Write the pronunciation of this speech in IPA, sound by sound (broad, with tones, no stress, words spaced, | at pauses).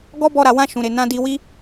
ɡɔ˦bɔ˧ɾa˨wã˧ ʃũ˨ɾe˨ nã˧di˧ wi˦